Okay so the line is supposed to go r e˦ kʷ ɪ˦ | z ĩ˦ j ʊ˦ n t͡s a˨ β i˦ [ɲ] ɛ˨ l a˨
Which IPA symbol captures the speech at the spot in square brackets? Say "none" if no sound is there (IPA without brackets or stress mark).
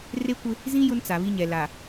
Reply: ɲ